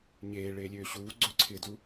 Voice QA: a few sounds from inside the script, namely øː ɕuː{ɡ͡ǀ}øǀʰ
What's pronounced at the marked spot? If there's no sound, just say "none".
ɡ͡ǀ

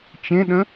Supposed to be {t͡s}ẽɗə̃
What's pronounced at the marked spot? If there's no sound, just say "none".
t͡ʃ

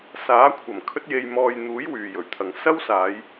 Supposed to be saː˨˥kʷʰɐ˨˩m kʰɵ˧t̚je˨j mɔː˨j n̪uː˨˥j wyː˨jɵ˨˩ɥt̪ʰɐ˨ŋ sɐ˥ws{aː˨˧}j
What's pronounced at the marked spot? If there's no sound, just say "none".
aː˨˧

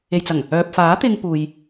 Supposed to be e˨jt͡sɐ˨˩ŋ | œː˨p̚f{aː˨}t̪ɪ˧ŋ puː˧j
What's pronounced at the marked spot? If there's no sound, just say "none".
aː˨˥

